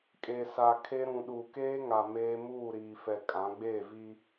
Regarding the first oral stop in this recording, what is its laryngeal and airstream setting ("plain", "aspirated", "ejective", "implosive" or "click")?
ejective